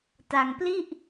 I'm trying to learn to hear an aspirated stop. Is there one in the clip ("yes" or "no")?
no